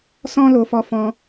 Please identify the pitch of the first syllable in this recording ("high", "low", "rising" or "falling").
high